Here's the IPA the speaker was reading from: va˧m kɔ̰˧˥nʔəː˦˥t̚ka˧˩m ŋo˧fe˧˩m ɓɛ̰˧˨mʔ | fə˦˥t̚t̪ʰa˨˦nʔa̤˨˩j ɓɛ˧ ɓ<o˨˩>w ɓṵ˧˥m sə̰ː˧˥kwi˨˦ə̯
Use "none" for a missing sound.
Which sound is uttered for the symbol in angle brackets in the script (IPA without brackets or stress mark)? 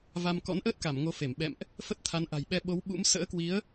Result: o˨˦